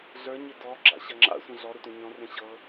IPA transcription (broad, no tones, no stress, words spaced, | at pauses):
ɮə˞ɲɪ dɔ ɡ͡ǁa̰ɕɐŋ͡ǁa̰sʷə̃ ɮɔɾə tʷẽɲɔ̃rẽ ɕɤ